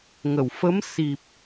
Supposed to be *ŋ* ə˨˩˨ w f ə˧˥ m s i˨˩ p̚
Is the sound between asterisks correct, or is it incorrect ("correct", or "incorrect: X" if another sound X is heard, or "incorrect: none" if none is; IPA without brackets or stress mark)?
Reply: correct